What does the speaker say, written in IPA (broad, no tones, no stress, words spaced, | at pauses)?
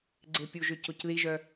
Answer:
ɡ͡ǀepʲuʒø cocðiʒœ